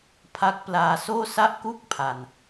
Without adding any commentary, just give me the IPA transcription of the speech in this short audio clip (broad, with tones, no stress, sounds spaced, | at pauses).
pʰ a˦˥ k̚ p l aː˧ s oː˥˩ s a˥˩ ʔ k u˥˩ k̚ pʰ a˧ n